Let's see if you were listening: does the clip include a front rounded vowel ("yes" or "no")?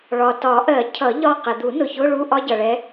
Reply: no